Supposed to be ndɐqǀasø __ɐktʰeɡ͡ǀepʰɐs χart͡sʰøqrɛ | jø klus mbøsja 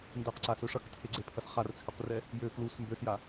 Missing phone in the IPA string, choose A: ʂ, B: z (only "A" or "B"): A